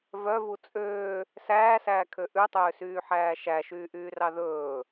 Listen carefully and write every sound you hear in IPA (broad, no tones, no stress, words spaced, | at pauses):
vœvu t͡sʼøː | sæːsæːkʰø ʔʉtˤøːsyːħæː ʃæʃyːʔyːrɑ ðɵː